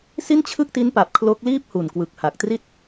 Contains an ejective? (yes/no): no